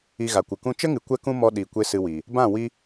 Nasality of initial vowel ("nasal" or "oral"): oral